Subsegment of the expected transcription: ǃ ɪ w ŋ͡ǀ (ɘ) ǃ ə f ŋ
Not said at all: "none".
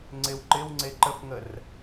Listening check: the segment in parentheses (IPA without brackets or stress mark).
e